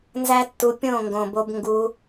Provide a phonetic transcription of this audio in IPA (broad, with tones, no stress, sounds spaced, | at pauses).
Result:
n z æ˦ tː u˧ pʲ õ˦˨ ŋ ɡ õ˨ b o˧ b ŋ ɡ u˧